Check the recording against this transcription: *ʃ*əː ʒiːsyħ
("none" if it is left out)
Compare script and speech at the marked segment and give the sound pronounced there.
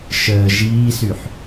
ʃ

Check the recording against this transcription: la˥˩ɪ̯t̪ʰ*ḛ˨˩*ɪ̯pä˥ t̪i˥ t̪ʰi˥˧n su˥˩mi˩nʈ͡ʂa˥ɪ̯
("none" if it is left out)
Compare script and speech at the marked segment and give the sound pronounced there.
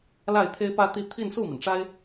e˥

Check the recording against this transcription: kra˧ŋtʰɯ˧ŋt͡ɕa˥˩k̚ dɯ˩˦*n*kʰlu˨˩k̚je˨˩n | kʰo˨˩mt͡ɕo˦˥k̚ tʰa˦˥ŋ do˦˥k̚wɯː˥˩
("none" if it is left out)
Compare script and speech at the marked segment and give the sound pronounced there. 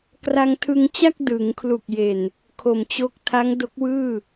ŋ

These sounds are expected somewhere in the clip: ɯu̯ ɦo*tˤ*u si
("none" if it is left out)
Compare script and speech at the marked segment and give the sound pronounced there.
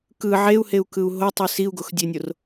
tˤ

